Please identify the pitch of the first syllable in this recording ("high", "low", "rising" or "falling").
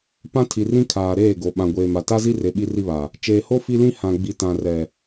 high